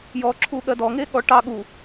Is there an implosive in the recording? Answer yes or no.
yes